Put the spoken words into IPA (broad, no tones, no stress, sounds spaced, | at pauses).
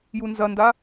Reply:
j u n z ɐ n d a